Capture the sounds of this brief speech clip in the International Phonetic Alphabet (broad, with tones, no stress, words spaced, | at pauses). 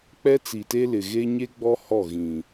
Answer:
k͡pɛ˦t͡si˨te˦lɪ˨ ɣe˦ ɲe˦ɡ͡bɔ˦ hɔ˦˨ɣĩ˨